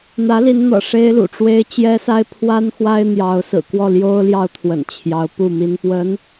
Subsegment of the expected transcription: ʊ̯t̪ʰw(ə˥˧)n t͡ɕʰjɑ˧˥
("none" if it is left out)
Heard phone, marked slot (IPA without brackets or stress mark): ə̰˨˩